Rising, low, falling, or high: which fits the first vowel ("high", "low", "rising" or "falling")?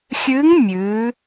rising